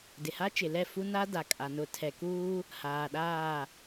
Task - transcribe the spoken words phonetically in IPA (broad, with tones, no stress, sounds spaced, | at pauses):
d ɪ˨ h a˦ t͡ʃ ɪ˨ l ɛ˦˨ f u˦ n a˦ d a˨ kʼ a˨ n ʊ˨ tʰ ɛ˨ k uː˦ | h aː˨ ɗ aː˦˨